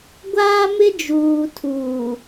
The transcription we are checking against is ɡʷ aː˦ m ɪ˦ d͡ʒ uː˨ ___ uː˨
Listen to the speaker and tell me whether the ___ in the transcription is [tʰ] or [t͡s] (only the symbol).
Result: tʰ